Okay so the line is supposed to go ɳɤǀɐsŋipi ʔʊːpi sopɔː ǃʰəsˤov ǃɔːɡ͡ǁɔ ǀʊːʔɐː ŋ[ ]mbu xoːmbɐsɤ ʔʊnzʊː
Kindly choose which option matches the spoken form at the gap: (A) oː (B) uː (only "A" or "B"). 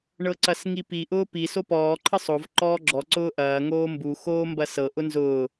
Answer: A